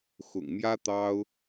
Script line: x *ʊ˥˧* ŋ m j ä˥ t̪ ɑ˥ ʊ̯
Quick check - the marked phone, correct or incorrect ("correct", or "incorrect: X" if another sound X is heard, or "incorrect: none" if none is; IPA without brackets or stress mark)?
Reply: incorrect: ʊ̰˨˩